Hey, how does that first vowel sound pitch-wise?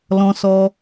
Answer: high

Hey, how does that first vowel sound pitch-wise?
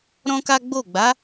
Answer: high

